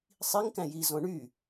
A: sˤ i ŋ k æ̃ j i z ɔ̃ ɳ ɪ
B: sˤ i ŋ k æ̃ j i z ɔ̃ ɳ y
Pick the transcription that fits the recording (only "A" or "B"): B